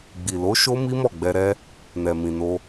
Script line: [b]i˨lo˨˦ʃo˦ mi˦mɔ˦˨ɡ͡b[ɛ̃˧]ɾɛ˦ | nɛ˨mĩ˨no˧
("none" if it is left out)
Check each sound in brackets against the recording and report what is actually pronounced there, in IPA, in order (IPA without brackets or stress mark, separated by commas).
ɡ͡b, ɛ˧